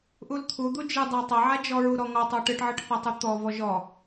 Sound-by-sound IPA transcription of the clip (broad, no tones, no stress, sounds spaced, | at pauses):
ʔ u l t̪ʰ u d̪ u d͡ʒ ɯ dˤ a tˤ a ʕ a d͡ʒ ɔ ɹ u ɾ ɔ ŋ ɔ tˤ ɔ ʈ ɯ ʈ ʕ ɯ ʈ θ a tˤ ɯ t̪ ɔ v ɔ ʒ ɔ